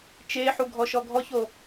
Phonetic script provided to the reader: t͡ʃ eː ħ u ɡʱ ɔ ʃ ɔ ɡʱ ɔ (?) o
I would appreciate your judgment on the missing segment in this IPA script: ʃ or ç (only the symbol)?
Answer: ç